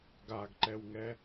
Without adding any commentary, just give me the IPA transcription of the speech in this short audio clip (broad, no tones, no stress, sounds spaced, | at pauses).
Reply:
ɡ a ɡ ǃ ɛ w ŋ ɛ